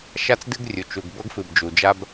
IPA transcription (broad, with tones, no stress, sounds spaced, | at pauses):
ʃ a˦ t͡s d ɨ˦ ɡ rʲ u˨ t͡ʃ u˨ ɡ b ɤ˦ ɡ f ɨ˨ b d͡ʒ u˨ d͡ʒ a˦ b